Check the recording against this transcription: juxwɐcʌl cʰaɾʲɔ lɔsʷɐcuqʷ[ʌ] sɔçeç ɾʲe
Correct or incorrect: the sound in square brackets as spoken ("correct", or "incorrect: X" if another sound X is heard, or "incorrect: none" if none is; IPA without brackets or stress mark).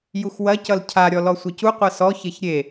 correct